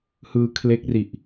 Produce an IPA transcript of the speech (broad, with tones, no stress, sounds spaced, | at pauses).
h ɯː˧ kʰ l e˦˥ k̚ r i˨˩ ʔ